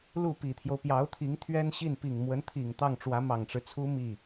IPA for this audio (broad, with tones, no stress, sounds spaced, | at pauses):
l u˥˩ p i˨˩ t̪ʰ j o˦ ʊ̯ p j ɑ˧˥ ʊ̯ t̪ʰ i˧˥ ŋ t̪ʰ ɥ ɛ˥ n ɕ i˥˩ n p i˨˩ ŋ m w ə˧˥ n t̪ʰ i˨˩ ŋ t̪ ɑ˥˩ ŋ ʈ͡ʂ w ä˧˥ m ɑ˨˩ ŋ ʈ͡ʂ ɻ̩˦ t͡sʰ u˥ m i˥˩